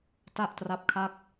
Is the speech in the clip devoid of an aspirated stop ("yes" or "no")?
no